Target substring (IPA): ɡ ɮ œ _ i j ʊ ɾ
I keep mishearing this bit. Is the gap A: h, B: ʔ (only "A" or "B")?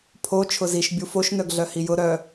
A